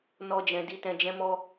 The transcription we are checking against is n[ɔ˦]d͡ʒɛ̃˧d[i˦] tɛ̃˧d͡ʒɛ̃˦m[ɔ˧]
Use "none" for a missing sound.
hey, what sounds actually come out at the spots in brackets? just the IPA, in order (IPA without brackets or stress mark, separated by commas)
ɔ˦, i˦, ɔ˦